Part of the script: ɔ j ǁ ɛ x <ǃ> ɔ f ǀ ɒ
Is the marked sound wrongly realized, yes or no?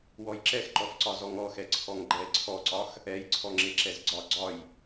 no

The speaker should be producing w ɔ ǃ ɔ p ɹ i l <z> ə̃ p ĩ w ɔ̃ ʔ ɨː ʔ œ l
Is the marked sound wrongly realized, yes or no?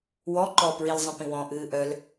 yes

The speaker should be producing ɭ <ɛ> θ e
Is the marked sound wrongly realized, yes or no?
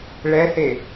no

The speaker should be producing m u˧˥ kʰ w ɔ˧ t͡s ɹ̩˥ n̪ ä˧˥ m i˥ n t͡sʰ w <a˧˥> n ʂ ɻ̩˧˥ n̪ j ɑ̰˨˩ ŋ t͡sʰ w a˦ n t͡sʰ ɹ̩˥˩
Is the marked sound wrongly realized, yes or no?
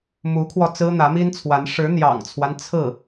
no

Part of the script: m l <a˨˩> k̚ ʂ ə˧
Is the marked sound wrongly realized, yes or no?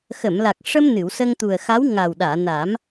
no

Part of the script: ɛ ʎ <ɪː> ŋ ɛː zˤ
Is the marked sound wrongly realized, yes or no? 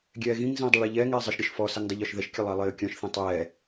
yes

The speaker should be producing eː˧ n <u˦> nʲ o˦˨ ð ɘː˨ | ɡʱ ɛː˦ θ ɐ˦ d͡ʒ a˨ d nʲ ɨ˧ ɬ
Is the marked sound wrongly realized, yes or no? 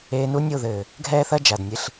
no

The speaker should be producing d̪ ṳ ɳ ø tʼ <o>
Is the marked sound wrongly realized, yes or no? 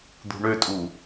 yes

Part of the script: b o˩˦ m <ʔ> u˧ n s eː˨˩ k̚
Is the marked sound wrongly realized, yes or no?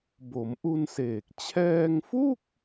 no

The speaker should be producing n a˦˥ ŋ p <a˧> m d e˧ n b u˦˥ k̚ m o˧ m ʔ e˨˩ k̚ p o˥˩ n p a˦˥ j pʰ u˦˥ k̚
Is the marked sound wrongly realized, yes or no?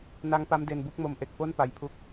yes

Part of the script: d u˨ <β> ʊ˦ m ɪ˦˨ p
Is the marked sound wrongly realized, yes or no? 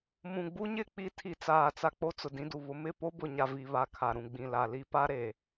no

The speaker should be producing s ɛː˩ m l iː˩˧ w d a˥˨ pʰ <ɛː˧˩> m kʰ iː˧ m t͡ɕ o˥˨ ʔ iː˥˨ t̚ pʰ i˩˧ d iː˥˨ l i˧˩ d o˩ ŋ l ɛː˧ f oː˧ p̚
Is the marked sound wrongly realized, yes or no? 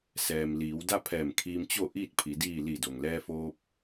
no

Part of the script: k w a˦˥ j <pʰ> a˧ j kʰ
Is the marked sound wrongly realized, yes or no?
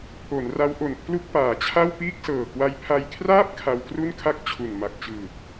no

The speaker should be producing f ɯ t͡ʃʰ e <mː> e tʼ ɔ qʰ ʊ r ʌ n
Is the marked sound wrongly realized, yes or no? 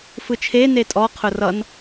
yes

